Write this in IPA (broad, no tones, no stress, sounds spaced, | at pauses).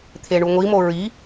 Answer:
t̪ʰ e ɳ u ŋʷ i m o ɹ i